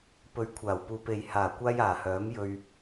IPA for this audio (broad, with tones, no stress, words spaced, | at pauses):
pɵ˨˧ɥkʷʰaː˨˩wpuː˨pe˨j haː˨˩kʷaː˧j aː˨˩hœː˨˥m jɵ˧ɥ